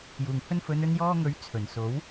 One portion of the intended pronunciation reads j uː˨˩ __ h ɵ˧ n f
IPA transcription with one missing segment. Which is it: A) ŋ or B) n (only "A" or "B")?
A